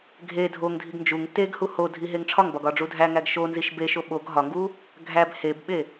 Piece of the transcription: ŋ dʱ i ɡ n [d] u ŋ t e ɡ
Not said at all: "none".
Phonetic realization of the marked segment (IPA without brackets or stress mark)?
d͡ʒ